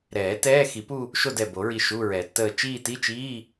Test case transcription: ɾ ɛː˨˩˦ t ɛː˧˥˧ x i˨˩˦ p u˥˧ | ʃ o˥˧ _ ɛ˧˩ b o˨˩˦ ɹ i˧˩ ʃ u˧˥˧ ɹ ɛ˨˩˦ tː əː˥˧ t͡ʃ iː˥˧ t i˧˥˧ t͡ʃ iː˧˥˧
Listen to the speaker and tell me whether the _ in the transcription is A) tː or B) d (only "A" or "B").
B